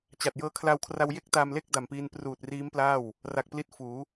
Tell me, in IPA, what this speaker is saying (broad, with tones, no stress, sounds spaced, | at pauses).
t͡ɕ a˨˩ t̚ j ɤː˧ kʰ l a˧ w kʰ r a˧ w j e˥˩ k̚ t a˧ m l e˥˩ k̚ d a˨˩ m p iː˧ n p r uː˨˩ t̚ r iː˦˥ m p l aː˥˩ w | r a˨˩ k̚ p l i˥˩ t̚ f uː˩˦